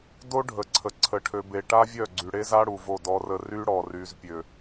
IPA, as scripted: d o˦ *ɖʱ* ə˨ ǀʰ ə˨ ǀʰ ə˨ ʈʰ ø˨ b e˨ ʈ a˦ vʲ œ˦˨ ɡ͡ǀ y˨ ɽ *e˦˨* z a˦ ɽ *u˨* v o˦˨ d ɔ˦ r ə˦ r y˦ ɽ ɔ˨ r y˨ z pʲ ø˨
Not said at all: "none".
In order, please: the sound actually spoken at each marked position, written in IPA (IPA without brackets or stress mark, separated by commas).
ɖʱ, e˦, u˨